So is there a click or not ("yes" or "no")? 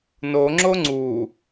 yes